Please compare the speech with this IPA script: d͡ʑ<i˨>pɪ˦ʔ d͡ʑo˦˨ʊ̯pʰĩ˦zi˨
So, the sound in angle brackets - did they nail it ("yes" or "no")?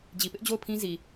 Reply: yes